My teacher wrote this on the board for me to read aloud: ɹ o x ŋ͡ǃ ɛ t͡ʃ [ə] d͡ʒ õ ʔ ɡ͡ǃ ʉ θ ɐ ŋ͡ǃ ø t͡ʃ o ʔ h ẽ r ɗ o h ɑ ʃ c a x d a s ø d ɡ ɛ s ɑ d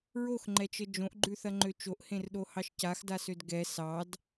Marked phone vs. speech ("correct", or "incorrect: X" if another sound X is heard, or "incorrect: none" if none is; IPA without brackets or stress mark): correct